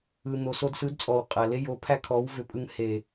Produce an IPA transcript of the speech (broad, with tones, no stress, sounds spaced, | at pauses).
ɯ˨ n̪ o˨ s o˧ d s ɯ˨˦ d t͡sʼ ɔ˨ w qʼ æ˨ l e˦ j o˨˦ pʰ æ˦ kʰ ɔ˨˦ w v ʏ˧ pʼ ɯ˧ ŋ h e˨